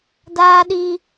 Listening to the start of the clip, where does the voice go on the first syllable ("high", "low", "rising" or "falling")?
high